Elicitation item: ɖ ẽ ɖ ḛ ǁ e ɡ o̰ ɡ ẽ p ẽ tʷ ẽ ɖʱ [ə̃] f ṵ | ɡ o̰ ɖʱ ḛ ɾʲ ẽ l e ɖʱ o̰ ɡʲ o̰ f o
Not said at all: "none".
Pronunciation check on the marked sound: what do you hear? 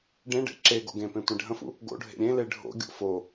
ə̃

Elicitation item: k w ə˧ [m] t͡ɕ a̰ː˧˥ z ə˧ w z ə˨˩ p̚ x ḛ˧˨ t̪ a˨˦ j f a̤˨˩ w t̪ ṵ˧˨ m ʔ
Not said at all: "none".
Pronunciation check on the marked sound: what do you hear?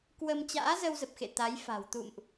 m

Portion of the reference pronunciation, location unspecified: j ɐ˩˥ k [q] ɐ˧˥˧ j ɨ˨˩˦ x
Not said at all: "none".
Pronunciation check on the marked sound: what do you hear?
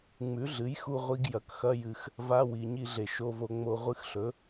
x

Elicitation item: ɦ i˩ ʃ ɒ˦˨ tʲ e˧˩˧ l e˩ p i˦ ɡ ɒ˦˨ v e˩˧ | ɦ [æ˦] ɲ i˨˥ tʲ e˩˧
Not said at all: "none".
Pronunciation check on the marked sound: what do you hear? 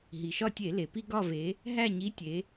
æ˦˨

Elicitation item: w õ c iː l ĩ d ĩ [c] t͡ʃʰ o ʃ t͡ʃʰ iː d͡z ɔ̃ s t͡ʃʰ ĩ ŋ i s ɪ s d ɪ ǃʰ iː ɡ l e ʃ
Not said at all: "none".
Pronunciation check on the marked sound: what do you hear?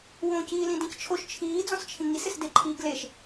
c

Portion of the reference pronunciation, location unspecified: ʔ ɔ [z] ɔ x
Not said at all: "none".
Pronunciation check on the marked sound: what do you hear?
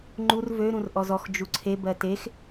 z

